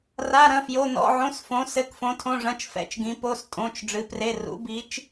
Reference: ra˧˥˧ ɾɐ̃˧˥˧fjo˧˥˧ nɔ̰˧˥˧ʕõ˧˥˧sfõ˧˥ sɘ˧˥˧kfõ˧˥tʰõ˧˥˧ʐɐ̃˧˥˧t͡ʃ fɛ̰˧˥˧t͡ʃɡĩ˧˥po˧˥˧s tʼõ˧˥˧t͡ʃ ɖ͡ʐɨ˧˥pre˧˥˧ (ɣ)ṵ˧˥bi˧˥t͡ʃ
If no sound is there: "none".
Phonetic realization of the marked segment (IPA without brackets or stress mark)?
r